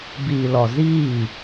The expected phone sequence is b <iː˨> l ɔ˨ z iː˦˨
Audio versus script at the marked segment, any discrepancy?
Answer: no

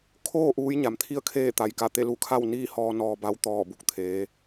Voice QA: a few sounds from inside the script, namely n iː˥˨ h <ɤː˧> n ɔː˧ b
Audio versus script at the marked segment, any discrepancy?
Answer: yes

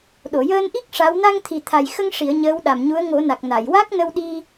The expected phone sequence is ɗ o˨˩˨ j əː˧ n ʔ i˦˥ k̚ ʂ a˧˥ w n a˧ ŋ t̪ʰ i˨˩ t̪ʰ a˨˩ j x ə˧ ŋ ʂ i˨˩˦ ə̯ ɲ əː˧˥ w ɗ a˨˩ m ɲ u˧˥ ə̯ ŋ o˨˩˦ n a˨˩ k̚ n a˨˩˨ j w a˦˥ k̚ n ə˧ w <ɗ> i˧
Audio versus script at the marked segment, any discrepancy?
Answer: no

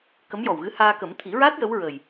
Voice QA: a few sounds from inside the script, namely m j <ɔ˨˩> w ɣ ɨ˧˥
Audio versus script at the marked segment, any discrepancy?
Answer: no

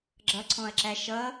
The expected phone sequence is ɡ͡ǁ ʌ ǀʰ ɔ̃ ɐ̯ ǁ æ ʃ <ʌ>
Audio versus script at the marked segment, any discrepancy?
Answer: no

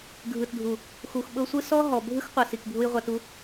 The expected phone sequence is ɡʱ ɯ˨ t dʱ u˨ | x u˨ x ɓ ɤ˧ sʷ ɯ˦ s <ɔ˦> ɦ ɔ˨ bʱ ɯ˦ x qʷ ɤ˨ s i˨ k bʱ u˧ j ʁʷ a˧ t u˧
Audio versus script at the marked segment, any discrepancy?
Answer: no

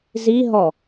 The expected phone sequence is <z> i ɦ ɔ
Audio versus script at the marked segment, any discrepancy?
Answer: no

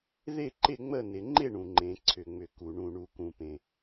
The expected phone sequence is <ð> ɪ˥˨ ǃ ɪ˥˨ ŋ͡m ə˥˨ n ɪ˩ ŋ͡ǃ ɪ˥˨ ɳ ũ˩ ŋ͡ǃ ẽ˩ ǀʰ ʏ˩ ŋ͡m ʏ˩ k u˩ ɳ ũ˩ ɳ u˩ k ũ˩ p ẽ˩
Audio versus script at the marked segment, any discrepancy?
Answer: no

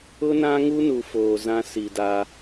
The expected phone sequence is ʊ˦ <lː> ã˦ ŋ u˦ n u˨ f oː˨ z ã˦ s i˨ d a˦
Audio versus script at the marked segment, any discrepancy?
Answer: yes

